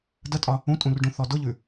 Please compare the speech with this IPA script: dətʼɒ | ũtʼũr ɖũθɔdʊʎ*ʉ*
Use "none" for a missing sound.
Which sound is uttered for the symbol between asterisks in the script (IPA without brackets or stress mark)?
ʉ